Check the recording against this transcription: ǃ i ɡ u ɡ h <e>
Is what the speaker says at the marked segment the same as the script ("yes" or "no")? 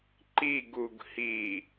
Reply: no